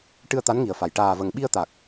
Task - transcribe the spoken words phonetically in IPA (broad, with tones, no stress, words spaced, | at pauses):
ʈɨ˧ə̯t̪a˧˥nŋi˨˩ə̯fa˨˩j ʈaː˨˩və˨˩ŋ ɓi˧ə̯t̪a˨˩k̚